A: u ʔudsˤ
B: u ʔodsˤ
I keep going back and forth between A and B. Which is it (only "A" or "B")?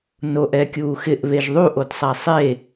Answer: B